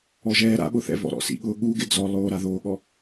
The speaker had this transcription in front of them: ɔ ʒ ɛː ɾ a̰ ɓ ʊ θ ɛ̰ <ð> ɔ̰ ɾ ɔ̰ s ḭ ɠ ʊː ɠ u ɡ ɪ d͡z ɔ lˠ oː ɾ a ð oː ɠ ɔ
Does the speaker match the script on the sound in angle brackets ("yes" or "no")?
no